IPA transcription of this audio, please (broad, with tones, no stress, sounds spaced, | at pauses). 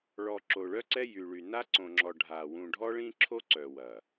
ɭ ɔ˨ ǁ o˨ ɭ œ˦ ǀ ɛ˦ j y˨ ɭ y˨ n a˦ ǀ õ˨ ŋ͡ǁ ɔ˨ ɖʱ a˨ w ũ˨ ɖʱ ɔ˦ ɭ ĩ˦ ǁʰ o˦ ǀ œ˨ w ɐ˨